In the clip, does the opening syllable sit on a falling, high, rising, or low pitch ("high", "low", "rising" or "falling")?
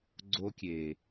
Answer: high